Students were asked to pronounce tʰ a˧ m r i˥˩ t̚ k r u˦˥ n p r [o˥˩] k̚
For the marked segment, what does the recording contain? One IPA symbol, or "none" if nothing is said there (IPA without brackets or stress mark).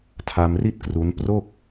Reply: o˥˩